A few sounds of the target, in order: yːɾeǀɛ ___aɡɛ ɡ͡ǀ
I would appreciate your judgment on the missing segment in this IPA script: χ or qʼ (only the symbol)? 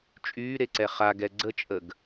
χ